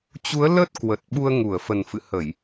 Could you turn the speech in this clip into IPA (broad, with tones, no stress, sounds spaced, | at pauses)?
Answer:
t͡ɕ u˨˦ ə̯ l ə˦˥ t̚ k w ə˨˩ t̚ ɓ u˧ ə̯ ŋ u˧˩ ə̯ f ə˨˩ n f ɨ̰˧˨ h ə˧˩˨ j